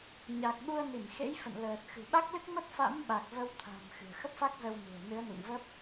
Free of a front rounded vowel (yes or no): yes